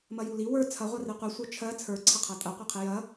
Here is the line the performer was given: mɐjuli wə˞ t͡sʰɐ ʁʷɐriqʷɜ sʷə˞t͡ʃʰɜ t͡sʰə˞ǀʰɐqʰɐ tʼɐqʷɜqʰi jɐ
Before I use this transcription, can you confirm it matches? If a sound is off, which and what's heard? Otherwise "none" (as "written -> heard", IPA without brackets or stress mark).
none